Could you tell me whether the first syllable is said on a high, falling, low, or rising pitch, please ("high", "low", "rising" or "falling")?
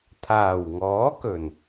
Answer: low